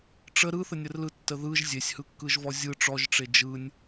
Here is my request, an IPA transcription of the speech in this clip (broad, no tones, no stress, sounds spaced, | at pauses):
ʈ͡ʂ ə ɾ ɯ θ ə nʲ ə r l ɯ tː ə ð ɯ ʒ zʲ e sʲ h ɯ kː ɯ ʒ v ɔ zʲ ɯ ʈ͡ʂ ɔ ʒ ʈ͡ʂ e d͡ʒ ɯ nʲ